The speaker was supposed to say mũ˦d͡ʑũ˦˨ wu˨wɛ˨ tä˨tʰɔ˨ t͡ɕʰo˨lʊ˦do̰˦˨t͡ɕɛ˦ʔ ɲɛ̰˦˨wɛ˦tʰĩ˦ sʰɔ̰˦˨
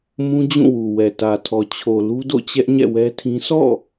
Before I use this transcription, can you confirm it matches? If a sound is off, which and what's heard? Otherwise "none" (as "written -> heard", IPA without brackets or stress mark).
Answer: ʊ˦ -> u˦